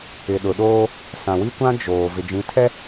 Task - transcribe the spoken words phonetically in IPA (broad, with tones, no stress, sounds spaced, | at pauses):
ɪ˨ ɗ ʊ˨ ɗ oː˦ | s ã˨ w i˦ kʷ ã˦ d͡ʒ oː˨ v ɪ˨ d͡ʒ ĩ˨˦ tʰ ɛ˦